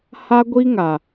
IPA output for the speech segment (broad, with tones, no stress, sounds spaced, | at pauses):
h a˦ ɡʷ i˦ ŋ a˨